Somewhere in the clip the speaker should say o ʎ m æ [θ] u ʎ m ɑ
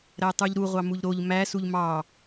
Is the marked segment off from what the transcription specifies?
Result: yes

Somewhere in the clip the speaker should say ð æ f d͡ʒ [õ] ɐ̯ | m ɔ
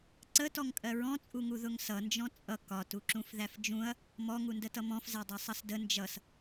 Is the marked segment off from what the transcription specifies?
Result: yes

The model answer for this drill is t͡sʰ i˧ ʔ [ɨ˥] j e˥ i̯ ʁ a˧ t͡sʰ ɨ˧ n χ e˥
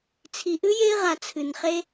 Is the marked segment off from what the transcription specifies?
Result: no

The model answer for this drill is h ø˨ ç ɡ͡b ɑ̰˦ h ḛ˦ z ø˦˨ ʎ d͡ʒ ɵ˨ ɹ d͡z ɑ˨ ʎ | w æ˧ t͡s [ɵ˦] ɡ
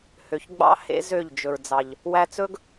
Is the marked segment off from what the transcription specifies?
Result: no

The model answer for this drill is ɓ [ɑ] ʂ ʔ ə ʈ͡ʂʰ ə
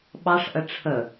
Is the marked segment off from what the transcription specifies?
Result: no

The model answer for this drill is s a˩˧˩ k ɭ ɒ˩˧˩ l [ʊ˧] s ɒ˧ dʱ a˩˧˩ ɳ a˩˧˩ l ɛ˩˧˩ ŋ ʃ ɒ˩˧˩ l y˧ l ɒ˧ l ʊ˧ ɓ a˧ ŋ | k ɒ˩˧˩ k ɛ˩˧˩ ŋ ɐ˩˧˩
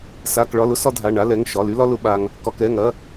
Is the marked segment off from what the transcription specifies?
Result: no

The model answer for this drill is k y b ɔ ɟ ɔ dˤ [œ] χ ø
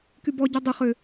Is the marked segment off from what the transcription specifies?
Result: yes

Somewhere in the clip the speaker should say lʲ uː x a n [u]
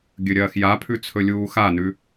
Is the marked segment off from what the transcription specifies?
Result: yes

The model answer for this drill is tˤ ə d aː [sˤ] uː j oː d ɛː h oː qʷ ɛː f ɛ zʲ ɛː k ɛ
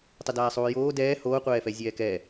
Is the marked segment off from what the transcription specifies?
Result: no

